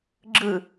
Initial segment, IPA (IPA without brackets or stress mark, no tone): ɡ͡ǁ